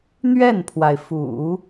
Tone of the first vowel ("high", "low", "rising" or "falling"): falling